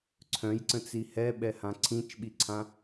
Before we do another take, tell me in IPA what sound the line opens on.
ǀʰ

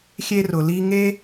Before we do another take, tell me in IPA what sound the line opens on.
xʲ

